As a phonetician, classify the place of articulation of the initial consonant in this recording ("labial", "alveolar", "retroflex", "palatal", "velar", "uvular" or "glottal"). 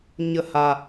palatal